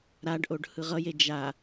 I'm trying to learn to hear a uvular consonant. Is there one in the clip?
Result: yes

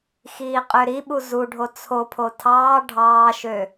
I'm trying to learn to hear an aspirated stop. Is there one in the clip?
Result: yes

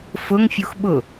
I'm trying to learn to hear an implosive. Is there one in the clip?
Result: yes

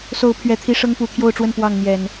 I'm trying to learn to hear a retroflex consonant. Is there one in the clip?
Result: yes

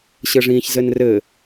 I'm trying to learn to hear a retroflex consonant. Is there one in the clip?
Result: yes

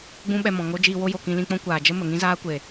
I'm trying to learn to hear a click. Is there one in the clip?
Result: no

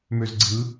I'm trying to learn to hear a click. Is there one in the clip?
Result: yes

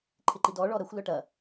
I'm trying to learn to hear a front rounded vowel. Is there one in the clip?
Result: yes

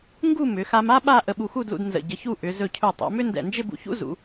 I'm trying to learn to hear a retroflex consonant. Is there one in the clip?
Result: no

